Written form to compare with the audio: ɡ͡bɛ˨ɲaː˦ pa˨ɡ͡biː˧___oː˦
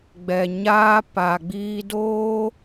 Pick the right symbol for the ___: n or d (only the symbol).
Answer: d